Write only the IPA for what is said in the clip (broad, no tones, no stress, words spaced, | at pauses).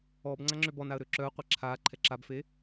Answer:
ɔb ŋ͡ǀaŋ͡ǁøbɔnaə̯ ɾøǁœə̯qʷɛ ǁʰa ǃʰɛǁabfe